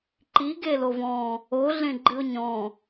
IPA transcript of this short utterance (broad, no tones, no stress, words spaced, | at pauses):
ǃi ɡelovɔ̃ | o ɮẽɡ͡ǃɨo̯ɲɔ̃